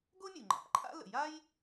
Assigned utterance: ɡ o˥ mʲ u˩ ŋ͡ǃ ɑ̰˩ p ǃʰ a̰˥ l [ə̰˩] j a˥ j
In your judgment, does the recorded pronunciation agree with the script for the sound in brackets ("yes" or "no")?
yes